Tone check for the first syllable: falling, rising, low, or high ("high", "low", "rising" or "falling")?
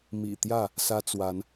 low